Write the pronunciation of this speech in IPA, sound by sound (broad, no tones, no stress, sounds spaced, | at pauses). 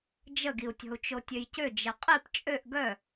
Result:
d͡ʒ ə ɡ i u̯ tʲ ɔ̤ u̯ t͡ʃ o tʲ ø j c ø d͡ʒ e qʼ i p t͡ʃʼ ø ʔ ɡ œ